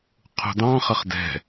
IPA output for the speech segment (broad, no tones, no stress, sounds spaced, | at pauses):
qʰ ṳ d ɑ̃ χ ə χ d ɛ̤